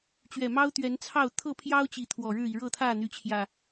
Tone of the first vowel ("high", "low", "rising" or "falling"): low